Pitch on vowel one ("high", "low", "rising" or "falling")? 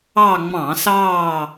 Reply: falling